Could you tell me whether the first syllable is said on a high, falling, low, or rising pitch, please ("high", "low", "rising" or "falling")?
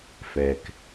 low